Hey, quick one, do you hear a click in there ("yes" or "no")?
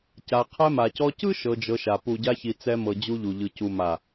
no